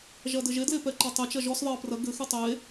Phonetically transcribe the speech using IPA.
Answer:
ʒɐdɘʒe dlepɛǃatˤe t͡ʃɐʒɔs ðˤɘːprɐ ɡɘxʉ tˤe

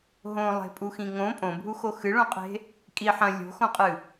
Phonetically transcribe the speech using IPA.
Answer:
ɦõlˠe̤pʼuxĩ ŋõ pʼõbʱuxo xɨɭõqʼe̤ | kʼi ħɐ̃ lʲo̤xõqʼɨ

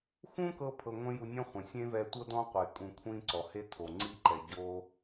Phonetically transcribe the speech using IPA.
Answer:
xũ˦kɤ˧ pʰɤ˧ŋʷẽ˦ju˧nʲɔ̃˦ χʷẽ˨ sʲẽ˦vɛ˧tʷɤ˦ dɔ̃˦qʷe˨ kʼũ˧kʷʰĩ˦ ǀɔ˨he˦ tʰo˨ŋ͡ǀi˦ǃɛ˨ ɟo˦

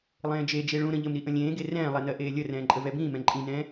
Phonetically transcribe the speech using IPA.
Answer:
lˠẽːd͡ʒed͡ʒe ɭũ ɾə̃ʎəmɾi ʔə̃lʲẽːɡe rɛ̃ːlˠɛ nɜʔeːlʲərɛ̃ː ǃʼəvɛbĩːmɛ̃ ǃʼĩnɛ̃ː

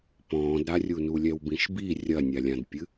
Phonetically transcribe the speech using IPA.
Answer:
pɔ̃ːdɾarʲunu lʲɛwbĩʃbi rʲɐnʲalʲãdpʲɨ

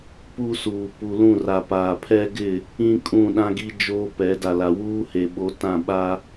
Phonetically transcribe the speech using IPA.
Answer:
pu˦suː˨ pu˨lũ˦˨ra˨paː˨ pʰɛ˦ɡɪ˦˨ | ĩ˦kʼũ˦˨ ɗã˦ɡi˦ d͡ʒoː˦pɛ˨˦ da˨la˨ wuː˦he˨ɓo˨˦tã˦˨ ɓa˦

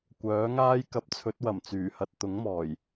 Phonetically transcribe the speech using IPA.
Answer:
kʷœː˨˥ŋaː˥j kɐ˨˥p̚t͡sʰɵ˨˥t̚wɐ˨˩m t͡syː˨˩hɐ˧t̚ t̪ʊ˨˥ŋmɔː˨˩j

